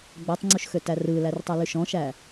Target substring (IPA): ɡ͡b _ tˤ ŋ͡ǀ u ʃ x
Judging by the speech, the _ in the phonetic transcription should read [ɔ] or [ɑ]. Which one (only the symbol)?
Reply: ɔ